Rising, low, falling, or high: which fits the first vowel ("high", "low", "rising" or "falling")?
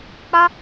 high